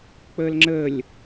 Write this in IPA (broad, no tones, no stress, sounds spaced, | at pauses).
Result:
k͡p əː l ŋ͡ǁ ə lʲ